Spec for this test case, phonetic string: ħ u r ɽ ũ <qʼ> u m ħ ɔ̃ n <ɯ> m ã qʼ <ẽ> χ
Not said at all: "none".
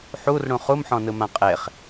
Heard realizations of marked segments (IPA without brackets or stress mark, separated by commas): χ, ɯ, e